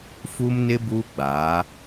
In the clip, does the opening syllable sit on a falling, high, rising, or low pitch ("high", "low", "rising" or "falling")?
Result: high